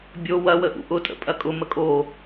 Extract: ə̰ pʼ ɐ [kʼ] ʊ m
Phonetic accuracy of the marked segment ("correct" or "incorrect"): correct